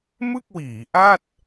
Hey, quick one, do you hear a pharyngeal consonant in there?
no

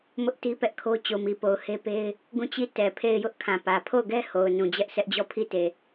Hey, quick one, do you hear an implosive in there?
no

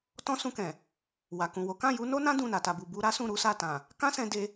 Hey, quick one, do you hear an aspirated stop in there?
no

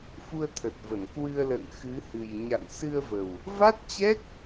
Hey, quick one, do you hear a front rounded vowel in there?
no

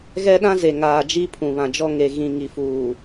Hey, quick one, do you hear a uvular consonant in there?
no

